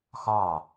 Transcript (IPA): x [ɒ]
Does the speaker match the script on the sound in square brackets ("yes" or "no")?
no